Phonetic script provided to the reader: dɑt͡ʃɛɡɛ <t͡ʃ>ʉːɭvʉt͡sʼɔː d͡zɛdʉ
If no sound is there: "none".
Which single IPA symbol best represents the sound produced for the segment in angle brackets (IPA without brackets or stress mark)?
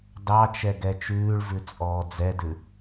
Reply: t͡ʃ